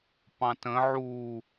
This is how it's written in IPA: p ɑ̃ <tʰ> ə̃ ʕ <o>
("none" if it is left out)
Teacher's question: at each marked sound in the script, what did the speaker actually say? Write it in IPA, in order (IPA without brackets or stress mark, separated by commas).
t, u